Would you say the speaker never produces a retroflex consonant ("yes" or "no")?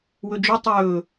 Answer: yes